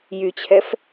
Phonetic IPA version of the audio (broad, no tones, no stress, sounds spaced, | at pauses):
j y t͡ɕʰ ɛ f